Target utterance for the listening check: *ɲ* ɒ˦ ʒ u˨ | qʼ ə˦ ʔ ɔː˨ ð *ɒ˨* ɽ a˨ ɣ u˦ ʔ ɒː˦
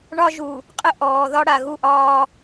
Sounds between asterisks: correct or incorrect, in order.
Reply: incorrect, incorrect

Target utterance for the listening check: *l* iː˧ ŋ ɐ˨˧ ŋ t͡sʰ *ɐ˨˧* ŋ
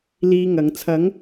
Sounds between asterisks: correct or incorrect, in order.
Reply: correct, correct

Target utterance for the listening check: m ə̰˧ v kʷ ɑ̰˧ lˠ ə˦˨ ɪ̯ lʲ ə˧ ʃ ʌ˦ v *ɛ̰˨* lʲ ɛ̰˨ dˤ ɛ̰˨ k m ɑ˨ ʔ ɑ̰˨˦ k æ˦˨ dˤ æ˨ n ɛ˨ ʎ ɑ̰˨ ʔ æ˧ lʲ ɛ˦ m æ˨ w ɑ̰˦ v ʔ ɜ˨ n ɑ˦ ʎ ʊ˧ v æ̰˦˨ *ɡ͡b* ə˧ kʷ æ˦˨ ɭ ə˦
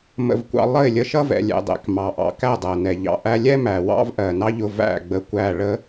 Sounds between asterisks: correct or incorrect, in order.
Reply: correct, correct

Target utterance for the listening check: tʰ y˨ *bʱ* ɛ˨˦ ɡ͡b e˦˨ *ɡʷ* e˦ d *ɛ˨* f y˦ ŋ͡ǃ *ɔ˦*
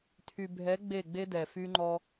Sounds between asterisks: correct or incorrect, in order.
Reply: correct, incorrect, correct, correct

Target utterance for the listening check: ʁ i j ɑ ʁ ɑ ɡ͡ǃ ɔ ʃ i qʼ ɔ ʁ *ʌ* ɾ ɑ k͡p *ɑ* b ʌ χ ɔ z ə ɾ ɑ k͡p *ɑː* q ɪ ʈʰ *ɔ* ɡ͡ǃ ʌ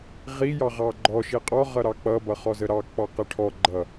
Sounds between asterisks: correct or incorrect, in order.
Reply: correct, incorrect, incorrect, correct

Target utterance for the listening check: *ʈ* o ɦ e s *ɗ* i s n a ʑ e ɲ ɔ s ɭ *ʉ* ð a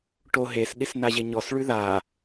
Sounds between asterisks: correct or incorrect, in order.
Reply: correct, correct, correct

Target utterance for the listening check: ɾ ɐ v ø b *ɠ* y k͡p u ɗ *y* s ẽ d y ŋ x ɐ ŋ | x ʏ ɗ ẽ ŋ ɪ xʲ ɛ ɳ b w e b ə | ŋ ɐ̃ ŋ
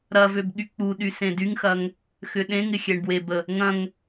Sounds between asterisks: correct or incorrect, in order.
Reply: correct, correct

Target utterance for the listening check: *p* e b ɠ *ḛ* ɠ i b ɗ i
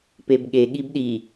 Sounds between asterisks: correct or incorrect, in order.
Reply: correct, incorrect

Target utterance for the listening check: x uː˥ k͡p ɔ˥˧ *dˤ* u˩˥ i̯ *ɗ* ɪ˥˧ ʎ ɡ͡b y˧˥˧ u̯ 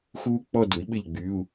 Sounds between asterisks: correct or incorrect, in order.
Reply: incorrect, incorrect

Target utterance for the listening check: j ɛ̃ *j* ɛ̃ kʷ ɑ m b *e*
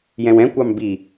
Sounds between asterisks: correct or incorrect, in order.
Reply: incorrect, incorrect

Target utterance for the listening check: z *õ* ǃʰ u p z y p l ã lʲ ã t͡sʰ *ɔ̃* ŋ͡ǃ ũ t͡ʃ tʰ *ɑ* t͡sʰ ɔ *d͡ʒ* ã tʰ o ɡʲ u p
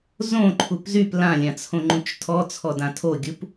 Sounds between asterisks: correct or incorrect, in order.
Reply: correct, incorrect, incorrect, incorrect

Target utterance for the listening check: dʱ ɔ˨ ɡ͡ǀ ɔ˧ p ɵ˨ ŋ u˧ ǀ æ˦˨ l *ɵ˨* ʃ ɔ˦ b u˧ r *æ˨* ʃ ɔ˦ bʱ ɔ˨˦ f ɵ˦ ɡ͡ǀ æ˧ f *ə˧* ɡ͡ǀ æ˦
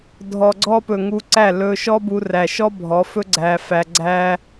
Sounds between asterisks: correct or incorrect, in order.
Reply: incorrect, correct, incorrect

